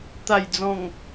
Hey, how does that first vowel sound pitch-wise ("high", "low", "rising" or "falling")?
low